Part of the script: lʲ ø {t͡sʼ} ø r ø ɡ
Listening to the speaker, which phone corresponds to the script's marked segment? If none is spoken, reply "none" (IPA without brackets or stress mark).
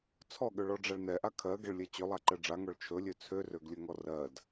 t͡sʰ